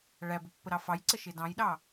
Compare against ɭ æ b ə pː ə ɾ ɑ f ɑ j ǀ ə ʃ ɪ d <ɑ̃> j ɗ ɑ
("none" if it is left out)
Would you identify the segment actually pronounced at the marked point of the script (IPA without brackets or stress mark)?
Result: ɑ̃